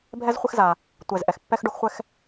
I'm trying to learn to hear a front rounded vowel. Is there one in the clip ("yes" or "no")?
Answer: no